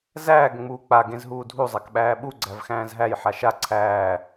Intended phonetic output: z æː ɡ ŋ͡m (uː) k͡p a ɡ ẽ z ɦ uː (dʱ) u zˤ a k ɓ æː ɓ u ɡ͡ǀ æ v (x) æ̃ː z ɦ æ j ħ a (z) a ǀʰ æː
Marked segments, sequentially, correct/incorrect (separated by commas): correct, correct, correct, incorrect